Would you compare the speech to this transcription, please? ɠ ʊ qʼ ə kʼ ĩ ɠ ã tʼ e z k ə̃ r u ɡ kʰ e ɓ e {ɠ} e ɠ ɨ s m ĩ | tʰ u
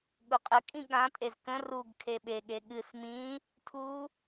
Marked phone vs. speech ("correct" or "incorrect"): correct